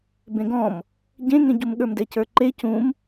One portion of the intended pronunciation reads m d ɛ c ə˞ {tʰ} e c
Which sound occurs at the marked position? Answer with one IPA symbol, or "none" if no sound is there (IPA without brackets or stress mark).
ǃ